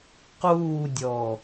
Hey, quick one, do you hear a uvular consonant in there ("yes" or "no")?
yes